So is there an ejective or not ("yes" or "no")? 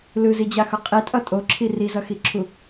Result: yes